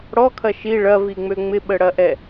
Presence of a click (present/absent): absent